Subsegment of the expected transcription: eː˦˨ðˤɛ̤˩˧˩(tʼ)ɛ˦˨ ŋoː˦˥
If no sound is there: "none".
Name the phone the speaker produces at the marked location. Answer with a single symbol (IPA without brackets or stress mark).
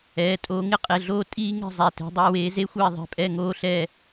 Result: pʼ